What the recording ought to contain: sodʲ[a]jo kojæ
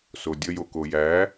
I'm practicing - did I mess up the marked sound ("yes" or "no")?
yes